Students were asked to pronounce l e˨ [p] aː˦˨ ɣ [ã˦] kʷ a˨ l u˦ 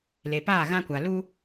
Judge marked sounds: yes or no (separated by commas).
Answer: yes, yes